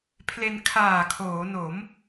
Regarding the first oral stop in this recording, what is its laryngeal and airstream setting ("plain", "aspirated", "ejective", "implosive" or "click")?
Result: aspirated